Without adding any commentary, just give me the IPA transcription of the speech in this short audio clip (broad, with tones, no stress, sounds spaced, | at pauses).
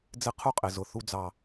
d͡z ɪ˦ qʰ u˦ qʼ ɪ˨ z ʊ˨ θ u˧ d͡z ɑ˨